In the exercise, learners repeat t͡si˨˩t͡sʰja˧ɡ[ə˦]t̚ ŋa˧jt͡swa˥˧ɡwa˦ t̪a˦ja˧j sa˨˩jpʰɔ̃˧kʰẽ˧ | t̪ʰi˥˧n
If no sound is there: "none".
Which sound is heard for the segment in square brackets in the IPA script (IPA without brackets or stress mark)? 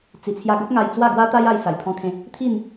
ə˦